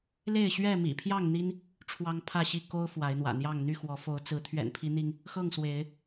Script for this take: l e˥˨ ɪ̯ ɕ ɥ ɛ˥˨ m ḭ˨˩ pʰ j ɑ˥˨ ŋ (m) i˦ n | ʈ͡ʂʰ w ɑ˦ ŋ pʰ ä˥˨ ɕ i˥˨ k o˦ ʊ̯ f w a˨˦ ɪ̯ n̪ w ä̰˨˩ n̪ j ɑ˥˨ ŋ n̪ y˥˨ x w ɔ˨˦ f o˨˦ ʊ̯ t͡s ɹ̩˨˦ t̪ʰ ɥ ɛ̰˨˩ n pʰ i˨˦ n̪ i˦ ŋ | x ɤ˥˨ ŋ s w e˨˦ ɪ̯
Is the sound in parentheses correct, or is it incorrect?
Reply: incorrect